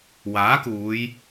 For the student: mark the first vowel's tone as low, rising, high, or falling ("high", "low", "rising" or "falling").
rising